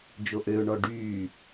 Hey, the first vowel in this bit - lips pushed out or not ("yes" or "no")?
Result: yes